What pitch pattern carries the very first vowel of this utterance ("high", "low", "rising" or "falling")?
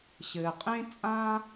low